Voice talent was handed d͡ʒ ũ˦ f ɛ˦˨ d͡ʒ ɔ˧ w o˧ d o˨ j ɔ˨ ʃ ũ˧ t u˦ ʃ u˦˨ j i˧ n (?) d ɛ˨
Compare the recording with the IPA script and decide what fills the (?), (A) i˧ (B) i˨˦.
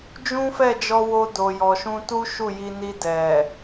A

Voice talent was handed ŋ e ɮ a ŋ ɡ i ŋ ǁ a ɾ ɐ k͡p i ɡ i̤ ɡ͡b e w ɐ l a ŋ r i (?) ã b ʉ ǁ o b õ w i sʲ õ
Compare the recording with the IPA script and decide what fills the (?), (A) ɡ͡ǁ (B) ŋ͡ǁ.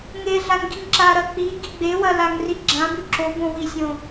A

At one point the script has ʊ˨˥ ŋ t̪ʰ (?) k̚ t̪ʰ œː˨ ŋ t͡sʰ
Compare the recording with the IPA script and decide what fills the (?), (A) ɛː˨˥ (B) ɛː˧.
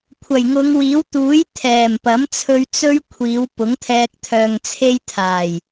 B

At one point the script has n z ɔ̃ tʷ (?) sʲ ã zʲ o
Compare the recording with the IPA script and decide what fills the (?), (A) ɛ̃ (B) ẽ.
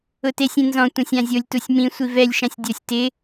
A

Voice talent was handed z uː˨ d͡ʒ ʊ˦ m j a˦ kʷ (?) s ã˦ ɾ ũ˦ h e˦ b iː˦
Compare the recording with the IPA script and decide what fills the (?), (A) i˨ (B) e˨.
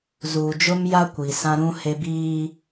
A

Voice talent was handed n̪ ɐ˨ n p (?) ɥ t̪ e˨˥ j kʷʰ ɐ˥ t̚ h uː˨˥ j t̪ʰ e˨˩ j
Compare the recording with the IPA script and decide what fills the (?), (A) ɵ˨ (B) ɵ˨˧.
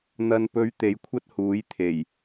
B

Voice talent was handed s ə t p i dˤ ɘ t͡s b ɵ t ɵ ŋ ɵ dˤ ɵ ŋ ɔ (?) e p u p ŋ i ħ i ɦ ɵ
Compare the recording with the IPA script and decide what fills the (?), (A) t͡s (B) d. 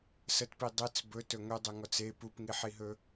A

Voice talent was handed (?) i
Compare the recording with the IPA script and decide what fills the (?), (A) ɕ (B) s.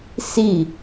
B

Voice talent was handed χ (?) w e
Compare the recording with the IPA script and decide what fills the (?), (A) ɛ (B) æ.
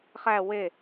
B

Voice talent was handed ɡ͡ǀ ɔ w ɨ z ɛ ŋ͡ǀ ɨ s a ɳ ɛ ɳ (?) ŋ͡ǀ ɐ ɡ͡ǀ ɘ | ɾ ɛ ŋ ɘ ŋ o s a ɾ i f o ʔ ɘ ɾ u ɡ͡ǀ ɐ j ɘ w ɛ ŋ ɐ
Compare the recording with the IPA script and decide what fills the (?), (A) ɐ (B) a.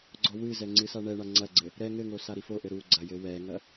B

